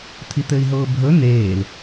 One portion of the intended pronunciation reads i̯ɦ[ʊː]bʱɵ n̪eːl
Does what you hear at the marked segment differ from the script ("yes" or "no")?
no